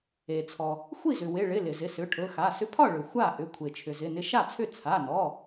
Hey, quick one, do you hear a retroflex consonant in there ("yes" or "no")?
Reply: yes